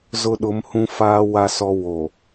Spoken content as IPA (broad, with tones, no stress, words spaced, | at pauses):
zʊ˦ɗʊ˨˦mhũ˦ faː˦ wa˦sɔ˦ wo˨